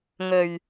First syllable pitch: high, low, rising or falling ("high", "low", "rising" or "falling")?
low